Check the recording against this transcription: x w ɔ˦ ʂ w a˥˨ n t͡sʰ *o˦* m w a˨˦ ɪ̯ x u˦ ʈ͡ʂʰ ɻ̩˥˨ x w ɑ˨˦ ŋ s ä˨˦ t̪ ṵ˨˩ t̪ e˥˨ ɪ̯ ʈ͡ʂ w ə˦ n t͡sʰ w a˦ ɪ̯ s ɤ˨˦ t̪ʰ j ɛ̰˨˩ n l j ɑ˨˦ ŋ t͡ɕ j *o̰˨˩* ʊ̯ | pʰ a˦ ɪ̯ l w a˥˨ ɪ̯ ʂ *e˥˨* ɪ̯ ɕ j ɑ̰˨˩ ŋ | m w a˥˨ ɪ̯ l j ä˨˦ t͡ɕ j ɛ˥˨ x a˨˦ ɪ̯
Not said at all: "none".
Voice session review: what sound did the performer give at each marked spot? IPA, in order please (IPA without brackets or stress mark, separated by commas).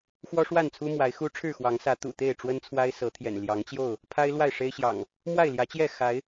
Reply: u˦, o˥˨, e˦